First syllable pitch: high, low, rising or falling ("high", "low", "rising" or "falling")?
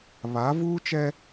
rising